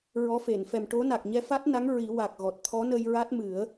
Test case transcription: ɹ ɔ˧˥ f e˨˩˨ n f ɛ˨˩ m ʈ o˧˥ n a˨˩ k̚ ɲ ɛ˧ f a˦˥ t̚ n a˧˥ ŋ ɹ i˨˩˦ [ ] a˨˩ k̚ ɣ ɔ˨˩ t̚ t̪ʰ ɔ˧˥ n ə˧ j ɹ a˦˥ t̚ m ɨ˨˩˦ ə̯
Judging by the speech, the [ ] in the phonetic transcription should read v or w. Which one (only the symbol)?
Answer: w